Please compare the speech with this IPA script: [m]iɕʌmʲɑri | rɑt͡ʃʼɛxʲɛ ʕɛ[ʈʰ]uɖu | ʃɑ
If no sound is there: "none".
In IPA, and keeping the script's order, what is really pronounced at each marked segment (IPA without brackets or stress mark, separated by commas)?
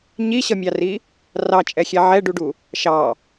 ɲ, ɖ